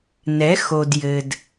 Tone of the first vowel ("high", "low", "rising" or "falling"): rising